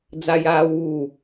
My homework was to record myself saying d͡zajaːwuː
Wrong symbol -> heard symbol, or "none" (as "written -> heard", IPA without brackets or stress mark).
none